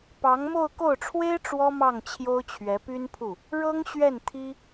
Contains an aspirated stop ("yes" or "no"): yes